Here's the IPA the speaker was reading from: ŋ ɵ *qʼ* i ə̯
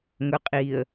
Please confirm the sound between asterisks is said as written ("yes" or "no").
yes